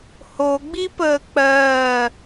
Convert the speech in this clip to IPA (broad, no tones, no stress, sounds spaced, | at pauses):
h o ɡ͡b i p əː k͡p ɜː